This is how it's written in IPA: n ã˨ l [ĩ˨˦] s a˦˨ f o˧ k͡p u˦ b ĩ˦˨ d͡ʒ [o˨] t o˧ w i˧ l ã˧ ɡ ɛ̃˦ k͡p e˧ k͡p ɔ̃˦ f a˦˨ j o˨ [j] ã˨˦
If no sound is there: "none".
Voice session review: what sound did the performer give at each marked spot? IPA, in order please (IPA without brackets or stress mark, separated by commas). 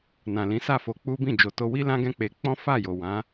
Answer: ĩ˨˦, o˨, w